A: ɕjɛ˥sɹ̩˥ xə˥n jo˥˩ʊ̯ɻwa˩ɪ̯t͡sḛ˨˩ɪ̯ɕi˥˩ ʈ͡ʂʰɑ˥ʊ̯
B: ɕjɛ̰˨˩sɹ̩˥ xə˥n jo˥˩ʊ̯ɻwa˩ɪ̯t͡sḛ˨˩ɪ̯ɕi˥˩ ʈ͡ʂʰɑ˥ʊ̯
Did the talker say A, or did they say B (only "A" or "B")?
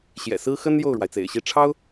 B